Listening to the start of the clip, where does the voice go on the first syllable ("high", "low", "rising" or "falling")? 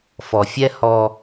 low